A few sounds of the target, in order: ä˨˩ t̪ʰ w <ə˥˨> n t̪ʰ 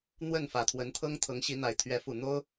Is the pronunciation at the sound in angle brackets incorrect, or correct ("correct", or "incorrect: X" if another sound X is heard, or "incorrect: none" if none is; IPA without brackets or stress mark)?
incorrect: ə˨˦